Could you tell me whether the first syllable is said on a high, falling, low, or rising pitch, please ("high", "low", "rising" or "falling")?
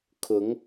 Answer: rising